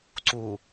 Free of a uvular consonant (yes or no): yes